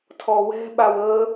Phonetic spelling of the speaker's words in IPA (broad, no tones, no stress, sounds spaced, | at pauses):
tʰ ɔ w ɛ̤ ɓ a w ə